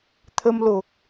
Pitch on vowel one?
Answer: high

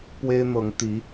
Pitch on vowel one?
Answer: high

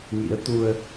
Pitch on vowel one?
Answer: rising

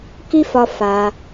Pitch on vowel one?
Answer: high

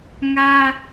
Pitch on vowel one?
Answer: high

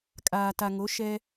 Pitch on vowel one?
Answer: low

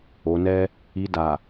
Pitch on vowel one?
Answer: low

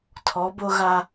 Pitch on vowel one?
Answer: rising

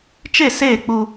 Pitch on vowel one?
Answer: falling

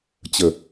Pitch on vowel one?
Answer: low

